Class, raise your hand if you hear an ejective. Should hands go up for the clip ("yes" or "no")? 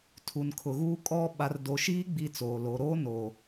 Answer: yes